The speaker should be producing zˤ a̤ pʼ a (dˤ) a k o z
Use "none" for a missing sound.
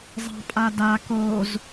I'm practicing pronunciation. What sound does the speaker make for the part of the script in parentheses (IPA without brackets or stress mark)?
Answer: d